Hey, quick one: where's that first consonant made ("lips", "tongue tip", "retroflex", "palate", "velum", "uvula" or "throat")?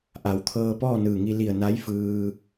throat